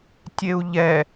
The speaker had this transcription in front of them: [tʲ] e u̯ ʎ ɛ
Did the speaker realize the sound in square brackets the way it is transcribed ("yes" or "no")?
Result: yes